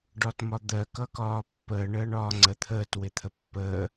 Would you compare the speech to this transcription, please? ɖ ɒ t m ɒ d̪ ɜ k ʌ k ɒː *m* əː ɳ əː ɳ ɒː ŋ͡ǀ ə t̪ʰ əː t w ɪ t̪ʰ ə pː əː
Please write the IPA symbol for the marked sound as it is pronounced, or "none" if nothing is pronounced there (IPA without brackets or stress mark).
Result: pː